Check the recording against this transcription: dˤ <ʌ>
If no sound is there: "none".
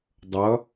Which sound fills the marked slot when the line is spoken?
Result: ʌ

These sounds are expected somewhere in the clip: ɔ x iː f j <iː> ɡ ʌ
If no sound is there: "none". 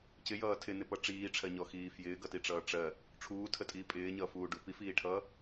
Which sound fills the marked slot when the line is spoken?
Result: ɪː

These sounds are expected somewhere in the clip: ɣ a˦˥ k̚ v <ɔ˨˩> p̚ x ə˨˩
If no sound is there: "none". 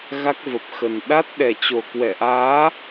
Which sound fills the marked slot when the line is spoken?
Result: ə˨˩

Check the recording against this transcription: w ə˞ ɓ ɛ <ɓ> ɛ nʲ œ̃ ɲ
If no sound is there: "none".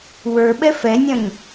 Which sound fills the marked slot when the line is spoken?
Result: f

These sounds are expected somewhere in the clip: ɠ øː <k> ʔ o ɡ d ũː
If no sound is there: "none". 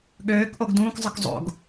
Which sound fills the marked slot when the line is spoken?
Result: k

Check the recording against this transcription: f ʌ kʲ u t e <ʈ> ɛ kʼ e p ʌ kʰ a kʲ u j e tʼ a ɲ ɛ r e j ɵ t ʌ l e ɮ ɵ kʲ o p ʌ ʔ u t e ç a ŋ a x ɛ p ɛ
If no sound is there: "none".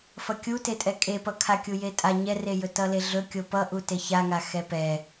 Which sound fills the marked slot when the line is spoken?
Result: tʼ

